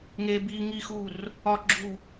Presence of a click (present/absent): present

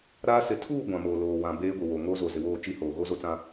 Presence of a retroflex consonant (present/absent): absent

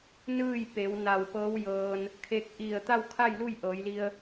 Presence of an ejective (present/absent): absent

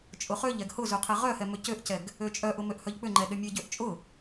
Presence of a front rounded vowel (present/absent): present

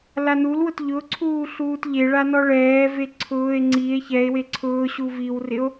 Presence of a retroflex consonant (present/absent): present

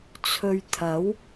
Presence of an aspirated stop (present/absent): present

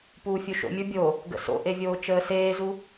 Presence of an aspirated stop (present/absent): absent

